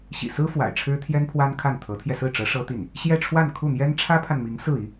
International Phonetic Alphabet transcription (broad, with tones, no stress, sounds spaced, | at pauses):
ɕ ḭ˨˩ s ɹ̩˥ f w a̰˨˩ ɪ̯ ʈ͡ʂʰ ɻ̩˥ t̪ʰ j ɛ˥ n pʰ w a˥ n kʰ a˥˩ n t̪ʰ ɤ˧˥ t̪ʰ j ɛ˧ s ɹ̩˥˩ ʈ͡ʂ ɤ˧˥ ʂ ɤ˥ t̪ i˥˩ n | ɕ j ɛ˥˧ ʈ͡ʂʰ w a˥˧ n kʰ u˥˩ n̪ j ɛ˥ n ʈ͡ʂʰ ä˥ pʰ a˨ n m i˧˥ ŋ s ɹ̩˥˩ i˥